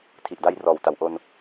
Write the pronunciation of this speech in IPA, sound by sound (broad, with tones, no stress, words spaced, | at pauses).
tʰi˨˩ʔda˧j rɔː˨˩wta˨˩wʔo˧n